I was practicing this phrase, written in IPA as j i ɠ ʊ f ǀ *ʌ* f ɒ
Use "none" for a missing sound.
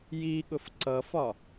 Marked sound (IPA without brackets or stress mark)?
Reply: ʌ